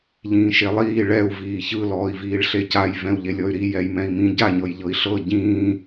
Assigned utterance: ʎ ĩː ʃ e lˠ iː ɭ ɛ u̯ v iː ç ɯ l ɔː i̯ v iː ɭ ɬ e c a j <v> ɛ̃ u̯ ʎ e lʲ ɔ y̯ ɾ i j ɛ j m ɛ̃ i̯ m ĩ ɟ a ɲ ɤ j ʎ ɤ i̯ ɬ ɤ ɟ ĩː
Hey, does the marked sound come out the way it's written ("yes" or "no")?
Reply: yes